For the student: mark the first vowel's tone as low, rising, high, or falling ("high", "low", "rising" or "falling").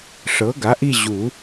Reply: rising